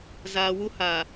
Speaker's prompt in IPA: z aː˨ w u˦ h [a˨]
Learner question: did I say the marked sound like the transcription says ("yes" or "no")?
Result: yes